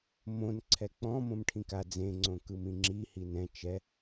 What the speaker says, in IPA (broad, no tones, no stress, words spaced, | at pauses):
mõn ǀʰɛk͡pɔ̃ mõmʈʰĩka d͡zẽ ŋ͡ǀõkɯmĩŋ͡ǁi hinɛ̃ t͡ʃɛ